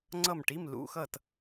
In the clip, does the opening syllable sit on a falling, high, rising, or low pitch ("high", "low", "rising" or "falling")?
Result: falling